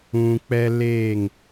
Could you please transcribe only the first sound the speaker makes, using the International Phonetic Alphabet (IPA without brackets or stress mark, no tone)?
ũ